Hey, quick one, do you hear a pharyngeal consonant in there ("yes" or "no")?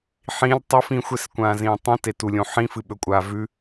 yes